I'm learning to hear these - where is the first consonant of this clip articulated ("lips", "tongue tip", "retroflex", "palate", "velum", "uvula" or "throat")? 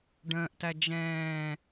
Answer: retroflex